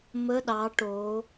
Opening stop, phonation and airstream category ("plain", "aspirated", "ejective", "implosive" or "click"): implosive